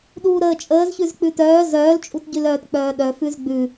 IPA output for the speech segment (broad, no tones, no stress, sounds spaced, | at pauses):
ɗ uː ɾ əː t͡ʃʼ əː z ç ʉ z k͡p ʉ t œː z œː l t͡ʃʼ u t ɟ ʉ l œː t k͡p œː ɗ œ f ʉ z ɡ͡b ʉ